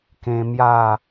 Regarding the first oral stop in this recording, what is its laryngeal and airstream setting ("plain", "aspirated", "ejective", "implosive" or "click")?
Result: plain